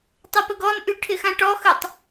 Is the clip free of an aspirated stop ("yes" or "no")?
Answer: no